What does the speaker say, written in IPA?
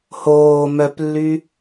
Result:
hoː mœplːy

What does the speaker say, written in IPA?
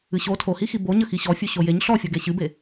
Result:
ɨɕo tʰohixi boɲə xiɕɔfʲu ɕojeɲ ɬɔfʲɔɡe ɕɨbe

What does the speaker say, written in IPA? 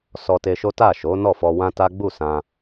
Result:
sɔ˧te˧ʃo˦ ta˦˨ʃo˨˦ nɔ˦˨fɔ˧wã˦ta˦ ɡ͡bu˦˨sã˧

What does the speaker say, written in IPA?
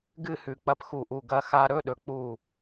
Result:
ɡɨ˥˧hʉ˩ k͡pɐ˧pxu˧˩ʔu˧˩ ɡɐ˧xa˧ɾɵ˧˥˧ɗɵ˩ k͡pu˧˩

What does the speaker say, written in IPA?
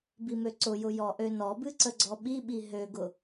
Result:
bimøǀʊjʊ jɔʔønɔbɨ ǀəɡ͡ǀɔɓiɓi ɦøɡʊ

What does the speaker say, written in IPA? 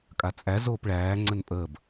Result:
kʼat͡sʼæz oːpɭæː ŋ͡ǀənpʼəːb

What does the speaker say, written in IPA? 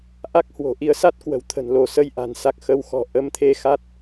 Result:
ʔa˦˥k̚hwo̤˨˩ʔi˧ə̯sa˦˥t̚ kwə̤˨˩wt̪ʰə̤˨˩nlo˧˩ sə˧j ʔa̤˨˩nsa˨˩k̚ xə˨˦wxɔ̤˨˩ ʔə˧mt̪ʰe˨˦ xa˦˥t̚

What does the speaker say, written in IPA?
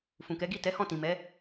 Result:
fũ˨kɛ˨˦ɡi˦˨ tɛ˨˦ hɔ̃˦˨tĩ˨mɛ˨˦

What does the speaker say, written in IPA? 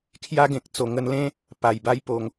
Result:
kʰja˦ɡẽ˨k̚t͡so˨˩ ŋə˧nlẽ˦ | pa˨˩jba˦j po˨˩ŋ

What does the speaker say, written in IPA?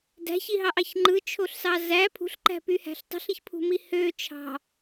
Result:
dæ̤çiɦɑʔɑç ŋ͡ǃɯt͡ʃʰoɬsɑ zæ pʰṳɬǃæ̤pyhæ̤ɬ tˤṳɬiçpʰṳmi hø t͡ʃʰɑ̤

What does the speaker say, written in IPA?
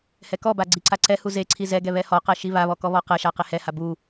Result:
hɛkɔba ɡ͡ǀiǀaǀɛhu zeǀʰi zɛɡɛ βɛhɔqɛ ʃiβaβɔ kɔβɔqɛʃa qehɛha bu

